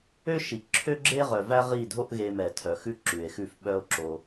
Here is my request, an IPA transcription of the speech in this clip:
ø˦ ʃ i˨ ǁʰ ø˦ ɡ͡ǁ e˦ ʁ œ˨ v æ˦ ʁ i˦˨ dʱ o˦ ʔ ɣ e˧ m ɛ˨ tʰ œ˨ x ʉ˦ ǁ ʉ˨ e̯ x ʉ˦˨ f ɓ œ˦ o̯ ǁ o˧

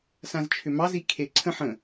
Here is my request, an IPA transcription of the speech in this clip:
s ã z t͡ʃʰ ʏ m ɑ z i kʰ e ǀʰ ə̃ ħ ə̃

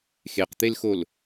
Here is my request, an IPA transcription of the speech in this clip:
x e q t̪ e l x o l

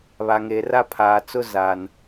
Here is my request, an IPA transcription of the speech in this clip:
β a˨ ŋ eː˨ r a˦ pʰ aː˨ t͡s ʊ˦ z aː˨ n

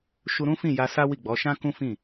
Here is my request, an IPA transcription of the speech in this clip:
ʃ u˧ ɾ ũ˦ f ĩ˦˨ j a˧ s a˦ w i˦˨ ɡ͡b ɔ˨˦ ʃ ã˦ k ũ˦ f ĩ˦˨

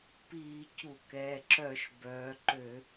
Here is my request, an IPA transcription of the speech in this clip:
p iː˧˩˧ c u˧˩˧ k ɛː˩˧˩ ǁ œ˧˩˧ ʃ b œː˩˧ ǃ ø˧˩˧

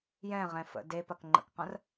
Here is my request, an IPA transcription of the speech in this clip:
j ɛ̃ ʁ ɛ̃ f ə̰ d e p ɐ k ŋ͡ǃ ə̰ k q ɐ̃ r

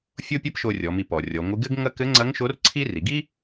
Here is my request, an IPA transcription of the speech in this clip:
fʲ o˥ pʲ ɐ˥ p ʃ o˧ rʲ ɔ˩˧ m i˧ p ɔ˩ rʲ ɔ˩˧ ŋʷ ɨ˧˥ ɡ ɘ˥ ɡ ŋ ɐ˥ k ɘ˧˥ ŋ͡ǀ ɐ˧˥ ŋ ʃ o˧˥ r ǀʰ i˥ r i˩˧ ɡ i˥

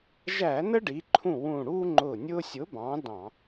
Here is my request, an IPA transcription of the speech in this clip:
ʒ æ˧˩˧ n ə˦ ɖ i˩˧ ǃʰ ũ˧˩ w ũ˧˩ ɽ u˦ ŋ͡ǃ ʊ˧˩ nʲ ʊ˦ sʲ ʊ˨˥ b ɑ̃˨˥ d ɑ̃˧˩˧

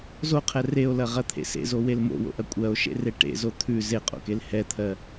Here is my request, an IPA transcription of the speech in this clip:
z o qʰ ɛ r e o̯ l ɐ ʁ ɐ t̪ʰ ḛ s ḛ z o w e l m o̰ w o̰ ʔ ɐ kʷʼ ɜ o̯ ʃ ḛ r e ʈ ḛ z o t̪ʰ ʉ z e qʼ o̰ k e l h ɛ t̪ʰ ɜ

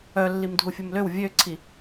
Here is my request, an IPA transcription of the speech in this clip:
œ lː i m dʱ u fʲ u m l ø w vʲ ø ǀʰ i

